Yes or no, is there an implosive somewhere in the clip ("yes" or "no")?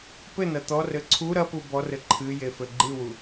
no